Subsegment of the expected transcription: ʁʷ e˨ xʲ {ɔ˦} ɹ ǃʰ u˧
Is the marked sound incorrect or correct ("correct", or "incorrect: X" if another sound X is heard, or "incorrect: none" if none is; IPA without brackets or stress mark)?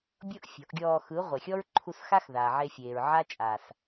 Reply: correct